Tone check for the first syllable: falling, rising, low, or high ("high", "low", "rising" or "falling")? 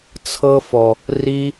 high